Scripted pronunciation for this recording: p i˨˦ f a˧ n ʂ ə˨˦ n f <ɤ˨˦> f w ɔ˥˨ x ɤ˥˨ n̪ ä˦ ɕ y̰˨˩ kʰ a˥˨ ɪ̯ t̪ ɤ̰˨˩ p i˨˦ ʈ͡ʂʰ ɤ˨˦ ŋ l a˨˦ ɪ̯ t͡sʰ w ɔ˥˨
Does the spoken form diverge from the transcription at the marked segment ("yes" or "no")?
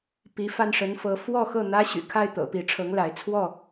no